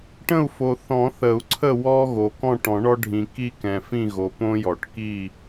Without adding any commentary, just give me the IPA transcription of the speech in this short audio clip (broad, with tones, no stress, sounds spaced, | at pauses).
ʈ ə̃˦˨ u̯ f o˨ θ ɔ̃˨˩˦ θ ə˨˩˦ u̯ ǀʰ ə˦˨ w ɔ˦ ɣ o˨ k ɔ̃˦˨ ʈ ɔ̃˨˩˦ ɳ ɔ˦ ɖʱ ĩ˨ k i˦ k ɛ̃˨ f ĩ˦˨ ɣ o˨ p õ˦ j ɔ˨˩˦ ʈ k i˦˨